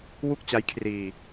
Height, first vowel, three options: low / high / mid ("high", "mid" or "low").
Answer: high